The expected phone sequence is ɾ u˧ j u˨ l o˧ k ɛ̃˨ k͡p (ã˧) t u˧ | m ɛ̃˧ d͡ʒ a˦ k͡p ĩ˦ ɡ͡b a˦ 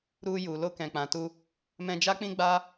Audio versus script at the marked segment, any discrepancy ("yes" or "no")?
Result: yes